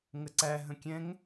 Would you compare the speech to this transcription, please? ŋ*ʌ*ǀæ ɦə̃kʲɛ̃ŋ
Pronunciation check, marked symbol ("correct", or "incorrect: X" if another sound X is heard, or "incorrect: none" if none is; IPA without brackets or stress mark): incorrect: ə